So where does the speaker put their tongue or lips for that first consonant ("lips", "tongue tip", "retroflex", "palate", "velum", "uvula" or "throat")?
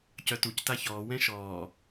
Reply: palate